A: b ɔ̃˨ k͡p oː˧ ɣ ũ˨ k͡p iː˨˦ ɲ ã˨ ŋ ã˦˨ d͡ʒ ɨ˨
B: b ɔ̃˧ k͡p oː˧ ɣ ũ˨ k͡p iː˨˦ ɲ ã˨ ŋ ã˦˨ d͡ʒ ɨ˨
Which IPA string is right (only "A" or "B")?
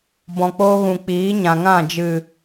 A